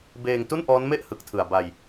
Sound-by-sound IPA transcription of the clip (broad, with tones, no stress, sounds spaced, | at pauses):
b eː˧ ŋ t u˥˩ n ʔ ɔː˦˥ n m e˥˩ ʔ h ɯ˨˩ k̚ tʰ ɯ˨˩ a̯ b a˧ j